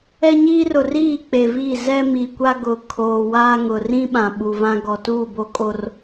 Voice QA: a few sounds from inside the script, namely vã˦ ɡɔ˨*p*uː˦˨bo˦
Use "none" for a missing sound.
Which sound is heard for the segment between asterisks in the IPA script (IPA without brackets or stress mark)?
t